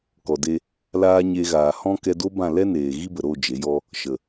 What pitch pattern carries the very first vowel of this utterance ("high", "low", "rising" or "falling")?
low